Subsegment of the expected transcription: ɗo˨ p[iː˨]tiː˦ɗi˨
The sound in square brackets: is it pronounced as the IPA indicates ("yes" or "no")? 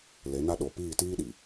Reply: no